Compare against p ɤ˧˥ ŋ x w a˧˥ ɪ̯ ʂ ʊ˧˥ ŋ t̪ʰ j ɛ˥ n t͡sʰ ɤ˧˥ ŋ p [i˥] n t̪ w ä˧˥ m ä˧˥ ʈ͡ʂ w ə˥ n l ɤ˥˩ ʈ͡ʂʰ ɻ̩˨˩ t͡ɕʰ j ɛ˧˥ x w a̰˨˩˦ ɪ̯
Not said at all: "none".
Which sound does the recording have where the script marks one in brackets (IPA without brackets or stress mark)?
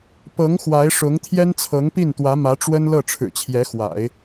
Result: i˥˩